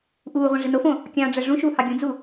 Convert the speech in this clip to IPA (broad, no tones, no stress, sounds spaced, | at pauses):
ʔ uː ʁʷ æ̃ ʐ i n o f õ | kʲ ɑ̃ː ɖ͡ʐ æ ʐ ũ ʃ uː h ɑ ɡʲ ũ d͡z u